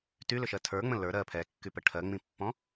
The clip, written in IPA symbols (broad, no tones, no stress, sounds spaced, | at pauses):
t y l ʏ ʃ ɜ tʰ ə˞ ŋ͡m ə̃ l ə˞ ɾ ɜ pʰ ɛ kː y p ə ʈʰ ɜ ŋ͡m ĩ pː ɔ̃